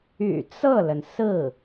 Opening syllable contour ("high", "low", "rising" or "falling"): low